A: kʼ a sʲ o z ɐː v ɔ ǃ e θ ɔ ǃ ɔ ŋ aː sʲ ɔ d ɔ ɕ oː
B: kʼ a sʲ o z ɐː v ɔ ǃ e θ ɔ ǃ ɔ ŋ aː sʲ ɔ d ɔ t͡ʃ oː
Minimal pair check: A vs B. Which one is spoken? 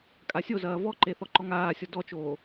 B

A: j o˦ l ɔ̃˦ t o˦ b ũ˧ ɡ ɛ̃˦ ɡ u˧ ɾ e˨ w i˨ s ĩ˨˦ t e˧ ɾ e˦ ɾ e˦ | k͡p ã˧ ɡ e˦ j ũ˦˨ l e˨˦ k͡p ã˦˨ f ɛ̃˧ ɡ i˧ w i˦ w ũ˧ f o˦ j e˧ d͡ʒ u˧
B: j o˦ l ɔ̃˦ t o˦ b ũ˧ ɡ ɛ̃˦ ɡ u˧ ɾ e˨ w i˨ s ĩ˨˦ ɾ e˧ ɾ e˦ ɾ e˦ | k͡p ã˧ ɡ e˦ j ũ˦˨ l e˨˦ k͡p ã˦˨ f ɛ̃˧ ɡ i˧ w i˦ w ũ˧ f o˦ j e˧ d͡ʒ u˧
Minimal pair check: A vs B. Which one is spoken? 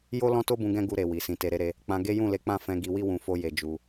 A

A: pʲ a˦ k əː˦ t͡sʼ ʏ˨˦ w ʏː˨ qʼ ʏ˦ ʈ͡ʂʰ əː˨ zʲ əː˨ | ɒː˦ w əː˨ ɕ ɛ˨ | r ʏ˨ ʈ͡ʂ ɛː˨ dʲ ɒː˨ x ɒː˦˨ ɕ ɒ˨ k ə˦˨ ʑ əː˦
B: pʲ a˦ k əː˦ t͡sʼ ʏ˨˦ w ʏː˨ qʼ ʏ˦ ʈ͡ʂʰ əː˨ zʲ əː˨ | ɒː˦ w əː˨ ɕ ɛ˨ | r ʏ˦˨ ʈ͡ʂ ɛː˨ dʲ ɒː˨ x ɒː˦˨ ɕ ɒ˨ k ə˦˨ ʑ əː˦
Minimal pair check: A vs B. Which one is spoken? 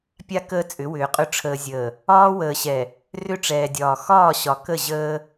B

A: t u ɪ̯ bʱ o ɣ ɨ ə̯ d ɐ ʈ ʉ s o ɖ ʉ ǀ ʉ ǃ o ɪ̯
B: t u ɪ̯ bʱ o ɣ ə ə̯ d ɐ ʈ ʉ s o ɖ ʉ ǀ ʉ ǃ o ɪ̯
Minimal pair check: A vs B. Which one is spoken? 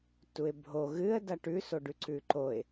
A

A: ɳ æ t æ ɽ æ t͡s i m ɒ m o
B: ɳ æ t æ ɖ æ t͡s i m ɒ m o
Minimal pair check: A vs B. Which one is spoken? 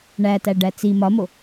B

